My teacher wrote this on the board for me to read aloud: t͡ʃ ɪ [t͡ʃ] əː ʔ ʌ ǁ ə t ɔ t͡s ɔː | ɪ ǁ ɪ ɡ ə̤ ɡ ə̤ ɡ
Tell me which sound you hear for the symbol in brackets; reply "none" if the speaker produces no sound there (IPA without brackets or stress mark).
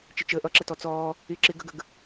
t͡ʃ